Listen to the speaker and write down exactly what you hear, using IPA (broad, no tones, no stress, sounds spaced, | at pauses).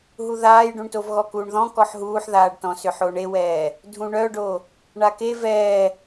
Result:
ɦ u ð aː j ɖ ũ ɳ t o v ɣ ɔ k uː ɳ ð ɔ̃ k ɔ ħ ɦ uː ħ ð aː ɖ t ɔ̃ s ʏ ħ o ɳ e w ɛː | dʱ ũ ɳ œ ɖ o | ɳ a k e v ɛː